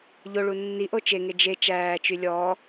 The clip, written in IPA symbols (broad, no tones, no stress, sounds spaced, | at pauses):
ʎ o ɭ u nː i ʔ o t͡ʃ e ŋ e d͡ʒ e t͡ʃ æː t͡ʃ y lʲ ɔː